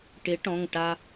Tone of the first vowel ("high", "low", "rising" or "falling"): rising